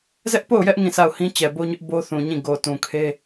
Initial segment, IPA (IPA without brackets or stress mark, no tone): z